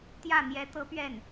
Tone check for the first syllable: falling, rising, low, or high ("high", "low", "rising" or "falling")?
falling